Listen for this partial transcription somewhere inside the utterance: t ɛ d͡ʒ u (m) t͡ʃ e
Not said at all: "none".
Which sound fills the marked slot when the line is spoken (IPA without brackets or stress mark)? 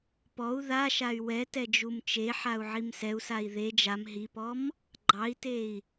m